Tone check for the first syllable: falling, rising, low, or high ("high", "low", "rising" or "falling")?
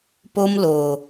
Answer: high